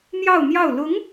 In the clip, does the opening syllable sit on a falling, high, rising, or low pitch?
falling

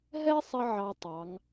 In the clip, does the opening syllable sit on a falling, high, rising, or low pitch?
high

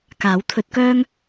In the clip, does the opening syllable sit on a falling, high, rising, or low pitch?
rising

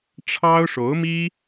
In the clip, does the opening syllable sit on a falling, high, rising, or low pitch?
high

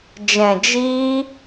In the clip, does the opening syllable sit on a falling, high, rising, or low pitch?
low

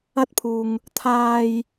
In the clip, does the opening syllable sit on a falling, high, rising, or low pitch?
high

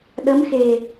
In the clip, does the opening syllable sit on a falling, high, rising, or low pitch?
rising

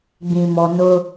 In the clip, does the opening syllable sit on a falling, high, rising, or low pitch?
low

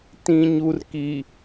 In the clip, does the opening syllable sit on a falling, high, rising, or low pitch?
low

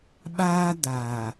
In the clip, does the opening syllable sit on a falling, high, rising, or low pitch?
high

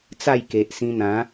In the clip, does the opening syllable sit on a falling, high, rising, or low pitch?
falling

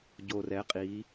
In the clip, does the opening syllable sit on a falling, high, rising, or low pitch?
low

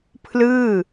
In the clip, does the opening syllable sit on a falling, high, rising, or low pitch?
falling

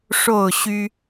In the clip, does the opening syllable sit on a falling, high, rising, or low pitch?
falling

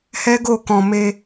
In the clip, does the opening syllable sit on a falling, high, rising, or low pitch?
high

